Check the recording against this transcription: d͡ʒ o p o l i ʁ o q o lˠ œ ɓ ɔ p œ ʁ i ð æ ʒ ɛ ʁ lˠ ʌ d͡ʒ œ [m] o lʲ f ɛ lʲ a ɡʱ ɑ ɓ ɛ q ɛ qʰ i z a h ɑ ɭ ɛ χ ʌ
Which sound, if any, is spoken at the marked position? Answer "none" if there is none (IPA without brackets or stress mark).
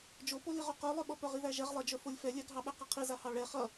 f